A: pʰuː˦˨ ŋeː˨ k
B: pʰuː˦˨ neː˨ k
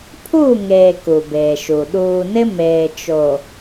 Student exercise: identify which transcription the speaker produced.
A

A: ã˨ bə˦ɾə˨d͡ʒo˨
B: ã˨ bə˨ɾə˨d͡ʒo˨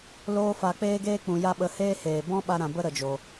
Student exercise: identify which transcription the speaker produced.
A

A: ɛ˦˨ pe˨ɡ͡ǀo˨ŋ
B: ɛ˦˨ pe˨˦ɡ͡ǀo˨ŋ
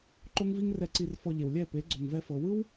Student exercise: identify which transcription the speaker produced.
B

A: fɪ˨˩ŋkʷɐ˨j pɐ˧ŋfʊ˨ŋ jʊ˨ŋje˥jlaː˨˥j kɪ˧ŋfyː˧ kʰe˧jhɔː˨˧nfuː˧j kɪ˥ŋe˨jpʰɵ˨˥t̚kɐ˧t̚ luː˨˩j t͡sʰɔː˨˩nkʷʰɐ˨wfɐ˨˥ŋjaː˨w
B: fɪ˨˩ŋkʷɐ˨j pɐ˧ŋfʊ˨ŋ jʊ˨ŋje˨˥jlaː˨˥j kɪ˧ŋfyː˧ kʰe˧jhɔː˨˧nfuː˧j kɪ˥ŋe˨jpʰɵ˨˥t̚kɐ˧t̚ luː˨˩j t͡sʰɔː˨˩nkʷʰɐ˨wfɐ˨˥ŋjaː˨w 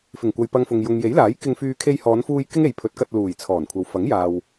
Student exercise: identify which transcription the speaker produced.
B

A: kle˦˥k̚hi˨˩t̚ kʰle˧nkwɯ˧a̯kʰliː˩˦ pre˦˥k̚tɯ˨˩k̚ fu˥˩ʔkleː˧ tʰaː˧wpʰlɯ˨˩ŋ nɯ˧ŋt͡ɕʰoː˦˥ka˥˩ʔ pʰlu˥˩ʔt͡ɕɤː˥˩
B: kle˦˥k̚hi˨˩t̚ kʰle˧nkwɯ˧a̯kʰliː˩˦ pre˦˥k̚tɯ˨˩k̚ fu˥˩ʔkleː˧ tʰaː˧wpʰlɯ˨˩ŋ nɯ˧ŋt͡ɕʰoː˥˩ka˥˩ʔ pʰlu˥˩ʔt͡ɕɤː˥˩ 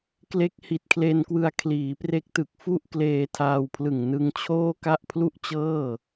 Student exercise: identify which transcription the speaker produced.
B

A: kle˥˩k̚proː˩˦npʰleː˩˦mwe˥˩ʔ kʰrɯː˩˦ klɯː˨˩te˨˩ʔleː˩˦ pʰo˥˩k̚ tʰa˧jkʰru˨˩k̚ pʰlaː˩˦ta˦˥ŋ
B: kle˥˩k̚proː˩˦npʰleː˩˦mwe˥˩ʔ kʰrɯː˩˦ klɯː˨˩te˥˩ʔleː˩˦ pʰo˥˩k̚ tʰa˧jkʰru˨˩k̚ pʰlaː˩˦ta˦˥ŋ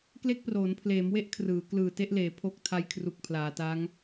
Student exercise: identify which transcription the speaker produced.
B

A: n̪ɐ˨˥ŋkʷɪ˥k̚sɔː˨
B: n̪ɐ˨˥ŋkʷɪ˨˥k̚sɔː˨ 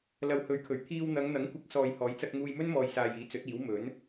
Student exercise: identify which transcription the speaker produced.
B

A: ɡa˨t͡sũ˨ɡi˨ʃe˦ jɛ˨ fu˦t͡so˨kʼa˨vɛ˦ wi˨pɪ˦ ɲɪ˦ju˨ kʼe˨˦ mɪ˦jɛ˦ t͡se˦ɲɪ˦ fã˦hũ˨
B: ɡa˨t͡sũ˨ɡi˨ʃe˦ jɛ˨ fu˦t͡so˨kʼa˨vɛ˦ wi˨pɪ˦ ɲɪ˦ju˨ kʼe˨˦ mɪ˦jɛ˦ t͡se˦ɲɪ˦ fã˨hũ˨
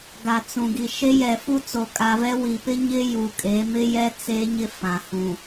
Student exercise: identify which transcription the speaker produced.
B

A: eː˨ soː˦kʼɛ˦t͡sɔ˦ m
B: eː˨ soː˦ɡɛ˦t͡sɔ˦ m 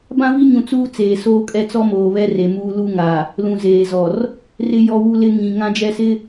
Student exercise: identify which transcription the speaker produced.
A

